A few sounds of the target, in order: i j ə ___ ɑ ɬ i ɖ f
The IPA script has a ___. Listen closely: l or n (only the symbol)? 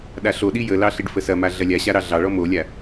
l